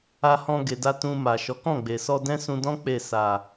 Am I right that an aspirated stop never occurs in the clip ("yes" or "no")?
yes